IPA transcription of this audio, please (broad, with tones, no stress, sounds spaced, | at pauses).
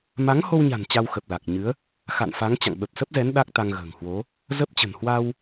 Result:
m a˨˦ ŋ h o˧ w ɲ a̤˨˩ n t͡ɕ a˧ w x ə˨˩ p̚ l a˨˩ k̚ ɲ ɨ˨˦ ə̯ | x a̰˧˨ n f a˨˦ ŋ t͡ɕ a̰˧˨ ŋ ɓ ə˨˩ p̚ s ə˦˥ p̚ z ɛ˨˦ n ɗ a˦˥ k̚ t̪ a˧ ŋ ɣ ə̤ː˨˩ ŋ h w o˨˦ | z ə˦˥ p̚ t͡ɕ ə̤˨˩ n h w a˧ w